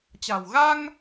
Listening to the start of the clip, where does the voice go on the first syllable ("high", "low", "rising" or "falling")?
low